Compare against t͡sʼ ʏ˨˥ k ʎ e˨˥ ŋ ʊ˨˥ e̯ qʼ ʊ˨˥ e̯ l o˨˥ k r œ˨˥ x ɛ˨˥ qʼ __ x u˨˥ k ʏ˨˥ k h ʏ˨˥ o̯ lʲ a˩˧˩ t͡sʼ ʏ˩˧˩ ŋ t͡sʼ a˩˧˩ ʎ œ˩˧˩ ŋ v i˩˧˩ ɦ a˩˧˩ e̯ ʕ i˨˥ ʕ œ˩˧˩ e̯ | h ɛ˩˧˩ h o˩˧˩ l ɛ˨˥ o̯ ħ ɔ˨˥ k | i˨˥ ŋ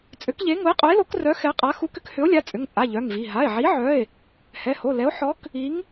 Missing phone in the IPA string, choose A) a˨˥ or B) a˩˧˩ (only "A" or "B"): A